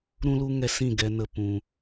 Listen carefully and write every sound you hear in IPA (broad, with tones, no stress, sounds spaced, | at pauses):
ɾ ũ˦ l u˦ ŋ ɛ˧ s ĩ˦˨ ɡ ɛ˧ n ə˧ p ũ˧